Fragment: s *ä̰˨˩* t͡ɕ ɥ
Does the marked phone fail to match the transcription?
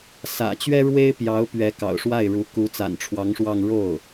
no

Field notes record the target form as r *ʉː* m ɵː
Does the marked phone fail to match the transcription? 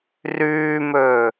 no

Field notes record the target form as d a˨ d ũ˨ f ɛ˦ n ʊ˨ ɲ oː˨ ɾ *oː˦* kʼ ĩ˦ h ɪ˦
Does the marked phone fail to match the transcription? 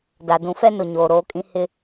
no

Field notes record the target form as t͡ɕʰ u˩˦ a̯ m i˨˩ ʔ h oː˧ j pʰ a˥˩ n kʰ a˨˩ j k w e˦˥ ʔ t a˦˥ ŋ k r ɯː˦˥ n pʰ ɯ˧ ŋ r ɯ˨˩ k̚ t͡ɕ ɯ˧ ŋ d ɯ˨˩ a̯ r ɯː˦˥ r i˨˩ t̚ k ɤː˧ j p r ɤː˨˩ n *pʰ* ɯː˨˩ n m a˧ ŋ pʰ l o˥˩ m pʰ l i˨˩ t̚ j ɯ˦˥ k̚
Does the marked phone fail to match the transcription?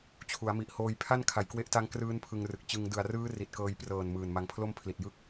yes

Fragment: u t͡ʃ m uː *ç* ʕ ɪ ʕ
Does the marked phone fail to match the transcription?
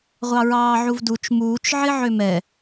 yes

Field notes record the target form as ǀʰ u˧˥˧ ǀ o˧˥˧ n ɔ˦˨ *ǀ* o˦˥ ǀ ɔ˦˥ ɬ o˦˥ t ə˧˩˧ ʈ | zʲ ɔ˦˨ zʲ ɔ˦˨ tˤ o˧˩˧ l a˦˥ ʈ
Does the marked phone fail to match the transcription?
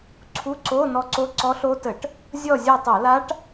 no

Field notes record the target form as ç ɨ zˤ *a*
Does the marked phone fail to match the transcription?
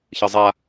no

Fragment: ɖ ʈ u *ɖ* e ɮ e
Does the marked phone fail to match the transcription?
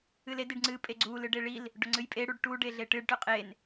no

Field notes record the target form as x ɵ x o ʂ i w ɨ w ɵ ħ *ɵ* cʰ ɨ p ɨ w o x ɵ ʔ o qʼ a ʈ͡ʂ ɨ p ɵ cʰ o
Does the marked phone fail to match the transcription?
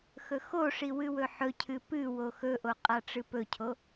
no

